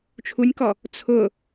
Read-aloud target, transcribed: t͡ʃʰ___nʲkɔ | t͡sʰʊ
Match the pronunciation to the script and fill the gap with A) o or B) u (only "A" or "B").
B